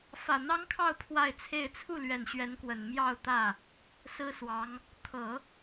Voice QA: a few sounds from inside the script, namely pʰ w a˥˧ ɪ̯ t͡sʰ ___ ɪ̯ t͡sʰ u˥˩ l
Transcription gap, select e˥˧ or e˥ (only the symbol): e˥˧